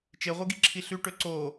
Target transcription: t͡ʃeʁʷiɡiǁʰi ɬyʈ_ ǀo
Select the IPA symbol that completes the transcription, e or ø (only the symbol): ø